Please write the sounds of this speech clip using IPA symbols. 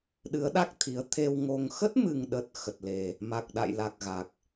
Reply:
ɗ ɨ˨˦ ə̯ ɗ a˦˥ k̚ t̪ʰ i˨˦ ə̯ t̪ʰ e˧ w ŋ o˧ ŋ x ə˦˥ t̚ m ɨ˨˩ ŋ ɗ ə˨˩ t̚ x ə˨˩ t̚ l e˨˩ | m a˨˩ k̚ ɗ a̰˧˨ j l a˨˩ k̚ ɣ a˨˩ k̚

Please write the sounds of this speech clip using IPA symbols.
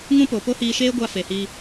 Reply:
ŋ ũ˦ p o˨ p o˦ h iː˧ ʃ eː˦ ɡʷ a˧ f e˨ h iː˧

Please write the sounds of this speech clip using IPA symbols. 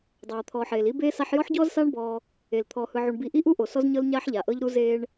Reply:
dˤ aː˨ t̪ʰ ɔː˨ ħ eː˨ l i˦ b eː˦ s a˦ ħ j ɔ˦ ħ ɟ ɔː˦ z s aː˦ ɳ b ɔː˦ | e˨ l t̪ʰ ɔː˨ h ɯ˨ ʕ u˨ ɳ b i˨ ʔ i˦ ʔ u˦ ʔ o˨ s ɔ˦ z ɲ ɤ˦ l ɲ aː˦ ħ ʎ a˨ ʔ ɤ˦ ʎ ɾ u˦ z eː˦ ɳ

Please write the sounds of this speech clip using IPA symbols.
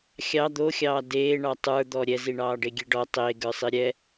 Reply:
xʲ ɑ d̪ o xʲ ɑː d eː ɳ ɑ tˤ ə˞ d̪ ɔ ɾʲ ɛ z i ɳ ɑː ɖ e ɡʲ e ɖ ɔ tˤ e ɡ ə˞ sˤ i ɾʲ ɛ

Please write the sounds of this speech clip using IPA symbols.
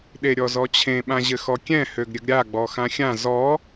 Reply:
ɗ e ɾʲ ɔ z ɔ t͡ɕʰ ẽ ɓ ã ʑ ɘ x ɔ kʲ ɛ̃ h ø ɡ ɾʲ ɘ ɡ ɾʲ a ɡ͡b ɔ x ã xʲ ã z ɔ

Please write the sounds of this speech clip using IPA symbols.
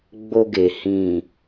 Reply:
ɡ͡b o˧ ɡ e˨ h ĩ˨

